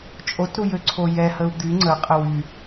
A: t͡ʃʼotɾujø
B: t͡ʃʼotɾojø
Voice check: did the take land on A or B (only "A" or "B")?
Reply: A